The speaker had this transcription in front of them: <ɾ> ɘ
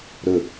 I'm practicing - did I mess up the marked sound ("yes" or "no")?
no